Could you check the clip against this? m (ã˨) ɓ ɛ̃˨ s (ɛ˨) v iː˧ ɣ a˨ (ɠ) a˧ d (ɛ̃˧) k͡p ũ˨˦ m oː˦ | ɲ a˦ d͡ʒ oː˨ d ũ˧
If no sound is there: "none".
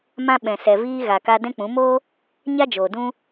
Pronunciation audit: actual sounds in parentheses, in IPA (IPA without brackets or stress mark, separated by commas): ã˧, ɛ˨, k, ɛ̃˧